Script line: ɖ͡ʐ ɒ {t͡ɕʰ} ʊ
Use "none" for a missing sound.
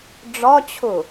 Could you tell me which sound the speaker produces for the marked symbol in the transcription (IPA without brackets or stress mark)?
t͡ɕʰ